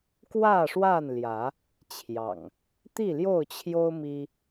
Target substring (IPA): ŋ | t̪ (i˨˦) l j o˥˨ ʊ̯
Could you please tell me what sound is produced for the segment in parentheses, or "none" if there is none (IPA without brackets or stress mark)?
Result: i˥˨